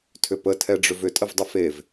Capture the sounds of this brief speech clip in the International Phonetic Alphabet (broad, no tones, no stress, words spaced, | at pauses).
tʰʏpə tʰɛɖ͡ʐʏvʏ tʼəvdˤəfev